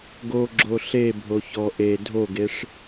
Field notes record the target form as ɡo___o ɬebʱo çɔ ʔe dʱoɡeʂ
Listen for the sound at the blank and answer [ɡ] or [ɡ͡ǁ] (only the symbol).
ɡ͡ǁ